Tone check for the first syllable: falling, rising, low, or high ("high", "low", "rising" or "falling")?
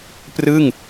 falling